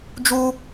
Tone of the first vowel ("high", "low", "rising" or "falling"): high